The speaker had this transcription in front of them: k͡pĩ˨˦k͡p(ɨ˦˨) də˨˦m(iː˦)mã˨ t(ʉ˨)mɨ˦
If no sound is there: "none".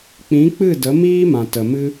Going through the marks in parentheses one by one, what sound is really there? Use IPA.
ɨ˦˨, iː˦, ə˨

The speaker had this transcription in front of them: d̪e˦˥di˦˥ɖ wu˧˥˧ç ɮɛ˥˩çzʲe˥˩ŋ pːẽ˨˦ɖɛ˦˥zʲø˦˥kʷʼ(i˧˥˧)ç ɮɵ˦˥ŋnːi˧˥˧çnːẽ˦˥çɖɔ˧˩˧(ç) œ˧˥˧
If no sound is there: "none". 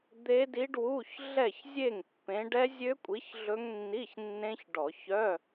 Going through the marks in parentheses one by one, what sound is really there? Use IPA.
i˨˦, ç

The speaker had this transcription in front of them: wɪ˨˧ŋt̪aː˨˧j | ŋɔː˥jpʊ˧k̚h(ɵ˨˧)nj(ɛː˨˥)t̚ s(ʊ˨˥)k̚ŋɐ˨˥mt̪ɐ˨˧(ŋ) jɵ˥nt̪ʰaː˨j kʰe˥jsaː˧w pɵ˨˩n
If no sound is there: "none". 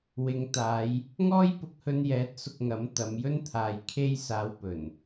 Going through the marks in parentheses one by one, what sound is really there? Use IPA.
ɵ˧, ɛː˨˥, ʊ˧, m

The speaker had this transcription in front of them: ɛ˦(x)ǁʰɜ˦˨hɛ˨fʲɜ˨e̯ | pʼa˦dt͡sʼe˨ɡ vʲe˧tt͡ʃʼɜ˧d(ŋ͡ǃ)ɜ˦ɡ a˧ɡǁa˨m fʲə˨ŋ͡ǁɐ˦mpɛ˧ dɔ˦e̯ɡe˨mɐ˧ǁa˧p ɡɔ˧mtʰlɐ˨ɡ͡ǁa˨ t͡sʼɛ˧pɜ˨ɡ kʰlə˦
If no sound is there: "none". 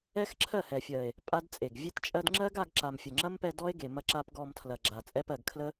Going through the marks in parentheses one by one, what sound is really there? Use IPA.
x, ŋ͡ǁ

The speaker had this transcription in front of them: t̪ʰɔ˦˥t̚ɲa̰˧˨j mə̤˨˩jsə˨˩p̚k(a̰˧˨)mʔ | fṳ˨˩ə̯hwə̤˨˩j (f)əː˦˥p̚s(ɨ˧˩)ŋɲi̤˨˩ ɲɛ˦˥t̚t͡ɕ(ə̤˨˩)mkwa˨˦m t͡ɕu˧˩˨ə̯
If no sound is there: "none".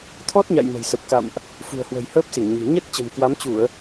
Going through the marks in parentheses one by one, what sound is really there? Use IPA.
a̰˧˨, h, i˧˩, ə̤˨˩

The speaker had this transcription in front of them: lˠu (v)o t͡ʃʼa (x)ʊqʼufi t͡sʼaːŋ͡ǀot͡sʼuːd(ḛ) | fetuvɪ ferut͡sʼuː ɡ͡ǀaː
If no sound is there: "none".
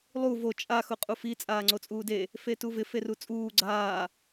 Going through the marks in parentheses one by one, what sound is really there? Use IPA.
v, x, e

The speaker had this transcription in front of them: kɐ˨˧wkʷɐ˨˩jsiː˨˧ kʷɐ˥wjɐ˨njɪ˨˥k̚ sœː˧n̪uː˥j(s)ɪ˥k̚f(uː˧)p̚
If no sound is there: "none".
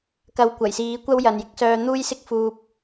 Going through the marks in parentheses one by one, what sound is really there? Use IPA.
s, uː˧

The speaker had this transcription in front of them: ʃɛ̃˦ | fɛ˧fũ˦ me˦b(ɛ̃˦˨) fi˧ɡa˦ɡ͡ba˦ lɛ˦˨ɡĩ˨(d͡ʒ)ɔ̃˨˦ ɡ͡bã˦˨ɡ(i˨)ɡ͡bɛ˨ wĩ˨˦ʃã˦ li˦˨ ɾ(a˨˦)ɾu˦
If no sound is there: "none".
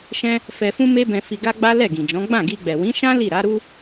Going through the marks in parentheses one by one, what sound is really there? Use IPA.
ɛ̃˧, d͡ʒ, i˧, a˨˦

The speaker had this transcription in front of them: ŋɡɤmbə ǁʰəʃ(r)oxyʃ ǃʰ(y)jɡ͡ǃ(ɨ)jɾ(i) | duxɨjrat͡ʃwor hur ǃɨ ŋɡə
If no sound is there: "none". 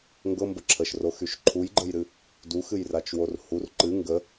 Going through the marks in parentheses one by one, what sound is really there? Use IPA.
r, u, ə, ɨ

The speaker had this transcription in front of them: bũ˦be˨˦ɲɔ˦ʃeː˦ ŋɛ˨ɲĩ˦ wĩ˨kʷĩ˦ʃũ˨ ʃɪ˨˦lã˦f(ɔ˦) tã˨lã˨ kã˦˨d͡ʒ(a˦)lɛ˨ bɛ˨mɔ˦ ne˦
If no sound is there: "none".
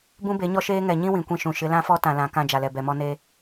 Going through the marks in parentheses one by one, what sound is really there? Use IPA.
ɔ˦, a˨

